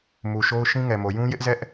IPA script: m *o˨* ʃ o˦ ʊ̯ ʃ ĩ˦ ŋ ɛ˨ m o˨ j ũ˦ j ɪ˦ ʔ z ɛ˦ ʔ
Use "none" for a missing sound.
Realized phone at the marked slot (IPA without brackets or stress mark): u˨